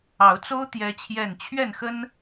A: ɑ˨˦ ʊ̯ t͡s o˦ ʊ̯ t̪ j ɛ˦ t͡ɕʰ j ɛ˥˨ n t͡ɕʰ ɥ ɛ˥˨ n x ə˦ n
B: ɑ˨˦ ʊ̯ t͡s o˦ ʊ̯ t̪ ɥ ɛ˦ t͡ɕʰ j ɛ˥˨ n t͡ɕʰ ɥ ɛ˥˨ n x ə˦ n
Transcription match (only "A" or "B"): A